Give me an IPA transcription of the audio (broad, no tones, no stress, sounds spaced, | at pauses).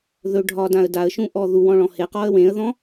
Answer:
ð ɵ ɖʱ ɒ d ã ə̯ d a ə̯ ʃ ũ ʔ ɔ ð u w ɔ̃ ɭ ɔ̃ h e q ɔ ə̯ w ẽ ə̯ ð ɔ̃